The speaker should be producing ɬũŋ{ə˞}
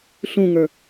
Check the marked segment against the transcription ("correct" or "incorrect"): correct